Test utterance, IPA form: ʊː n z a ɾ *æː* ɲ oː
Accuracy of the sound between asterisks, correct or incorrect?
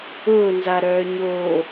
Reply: incorrect